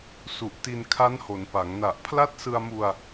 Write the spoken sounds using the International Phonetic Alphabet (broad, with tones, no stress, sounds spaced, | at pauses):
s u˨˩ ʔ t i˧ n kʰ a˦˥ n h o˩˦ n p a˩˦ ŋ n a˨˩ ʔ pʰ l a˦˥ t̚ s ɯ˧ a̯ m u˧ a̯